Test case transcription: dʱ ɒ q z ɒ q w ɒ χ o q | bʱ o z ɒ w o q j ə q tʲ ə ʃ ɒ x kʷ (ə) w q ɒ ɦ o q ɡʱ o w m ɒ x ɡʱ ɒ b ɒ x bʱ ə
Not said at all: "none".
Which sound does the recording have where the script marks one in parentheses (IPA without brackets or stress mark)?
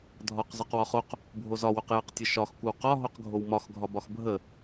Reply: ə